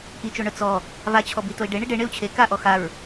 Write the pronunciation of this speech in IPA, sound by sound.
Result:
ʔ i t͡ʃ o ɳ œ t͡s ɔ | v a t͡ɕʰ ɔ b i t o i̯ ɖ e ɳ i ɖ e ɳ e u̯ t͡ɕʰ e k a ʔ ɔ x a ɹ

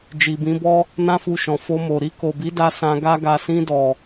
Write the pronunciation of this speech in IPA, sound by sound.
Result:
d͡ʒ i˨ b ĩ˨˦ b ɔ˦ | n ã˦ f u˧ ʃ ɔ̃˨ f o˧ m o˨ ɾ i˧ k o˨ b i˨˦ d a˧ s ã˧ ɡ a˦ ɡ a˧ s ĩ˧ d ɔ˨

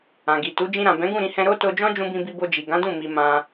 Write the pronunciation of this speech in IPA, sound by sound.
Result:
ã˨ ɡ i˨ t u˨˦ d͡ʒ ĩ˧ ɾ ã˨ b ɛ̃˨˦ ɡ ũ˦˨ ɾ ĩ˧ h ɛ̃˧ ɾ o˦ t o˧ d͡ʒ ɔ̃˦ d͡ʒ ũ˧ b ĩ˧ b i˧ b o˧ d͡ʒ i˨ ɡ ã˨˦ d ũ˦˨ m i˧ m ã˧

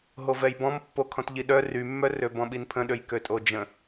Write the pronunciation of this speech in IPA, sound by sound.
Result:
ɦ o v ɛ j b ɔ̃ m pː o kʰ ɔ̃ t ʎ i ɗ œ r y mː œ r ø b ɔ̃ ɓ i n pʰ ə̃ ɗ ø j k ø tʼ o d͡ʒ ə̃

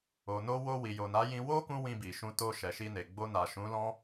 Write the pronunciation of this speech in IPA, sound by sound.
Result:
o˨ n o˧ w o˧ w i˨ j o˨ n a˨˦ j ĩ˧ w o˦ k ũ˧ w ĩ˧ b i˨ ʃ ũ˧ t o˧ ʃ ɛ˨ ʃ i˧ n e˨ ɡ͡b o˧ n a˨ ʃ ũ˨˦ l ɔ̃˦

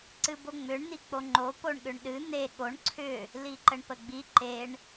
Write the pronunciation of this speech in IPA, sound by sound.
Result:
ǀ ɨ b o ŋ͡m ʏ ɳ n̪ i k͡p o ŋ͡ǃ o p o ɳ ɠ ʏ ɳ ɗ ɨ n̪ e ɠ o ɳ ǀʰ ʏ | l i ǃ ə ɳ p ə ɡ͡b i ǃ e ɳ

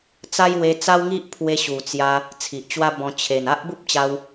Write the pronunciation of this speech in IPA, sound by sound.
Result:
t͡s a˦ j w e˧ t͡s a˦ w ŋ i˦ ʔ pʰ w e˧ ɕ u˨˩ t͡s j a˧ | t͡sʰ i˨ ʔ t͡ɕ w a˦ b ɔ̃˧ t͡ɕʰ e˨˩ n a˦ ʔ b u˦ p̚ t͡ɕ a˧ w

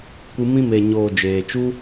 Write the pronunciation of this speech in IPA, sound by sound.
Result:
kʷ ɨ˧ m ĩ˧ m e˨ ɲ oː˨ d͡ʒ eː˨ t͡ʃ u˦

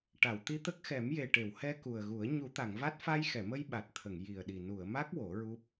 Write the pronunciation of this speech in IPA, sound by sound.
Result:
ʈ a˨˩˨ w t̪ i˧ t̪ ə˦˥ k̚ x ɛ˨˩˦ m j e˨˩ ʈ e˨˩˨ w h ɛ˧ k u˨˩ ə̯ ɣ u˨˩˦ ə̯ ɲ u˨˩˦ t̪ a˨˩˨ ŋ v a˦˥ t̚ f a˧ j x ɛ˨˩˨ m ə˧ j ɓ a˨˩ t̚ t̪ʰ ə˨˩˨ ŋ j i˨˩ ə̯ ɗ i˨˩ n u˨˩˨ ə̯ m a˦˥ k̚ w o˨˩˦ ɹ u˦˥ p̚

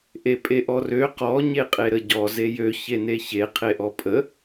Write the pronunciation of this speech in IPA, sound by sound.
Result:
ʔ e pʼ e ʔ ɔ r ø q ɔ ɲ e qʼ e ɾ ə ɟ ɔ z e j ø ç e n e ç e qʰ e ʔ ɔ pʼ ə

